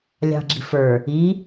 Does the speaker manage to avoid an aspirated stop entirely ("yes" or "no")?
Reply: yes